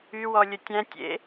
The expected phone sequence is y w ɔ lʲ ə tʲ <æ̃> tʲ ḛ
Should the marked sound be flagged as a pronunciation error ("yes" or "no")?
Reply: no